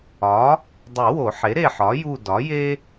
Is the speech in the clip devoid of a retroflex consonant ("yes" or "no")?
yes